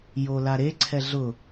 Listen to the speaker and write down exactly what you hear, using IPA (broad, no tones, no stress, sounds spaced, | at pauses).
j o l a ɾ e ǀʰ ɛ ɮ ʊ